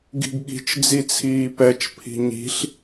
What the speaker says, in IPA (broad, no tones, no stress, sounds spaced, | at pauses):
ɡ i̤ ɡ ɠ i̤ t͡ʃ d͡z i t͡sʰ iː p ɛ t͡ʃ pʰ i̤ ɲ i̤ ɬ